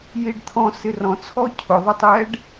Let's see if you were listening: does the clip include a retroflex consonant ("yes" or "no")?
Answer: yes